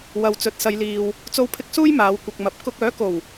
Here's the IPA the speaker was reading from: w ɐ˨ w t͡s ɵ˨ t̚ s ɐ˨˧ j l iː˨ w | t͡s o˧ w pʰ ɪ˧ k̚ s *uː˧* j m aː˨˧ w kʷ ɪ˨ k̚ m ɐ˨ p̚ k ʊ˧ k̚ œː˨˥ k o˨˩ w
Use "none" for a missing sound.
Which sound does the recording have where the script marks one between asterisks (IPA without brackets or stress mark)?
uː˥